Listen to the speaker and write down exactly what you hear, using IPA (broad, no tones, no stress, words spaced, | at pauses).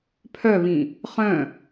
pʰœβĩ | χœ̃